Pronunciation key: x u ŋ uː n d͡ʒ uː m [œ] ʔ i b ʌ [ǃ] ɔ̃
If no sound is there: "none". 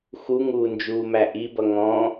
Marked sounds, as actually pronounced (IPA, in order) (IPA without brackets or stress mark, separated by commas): æ, ŋ